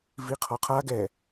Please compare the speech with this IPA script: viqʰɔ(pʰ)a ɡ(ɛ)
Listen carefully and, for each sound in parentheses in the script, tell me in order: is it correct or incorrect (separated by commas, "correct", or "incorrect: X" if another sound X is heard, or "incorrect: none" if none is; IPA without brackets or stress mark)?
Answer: incorrect: qʰ, correct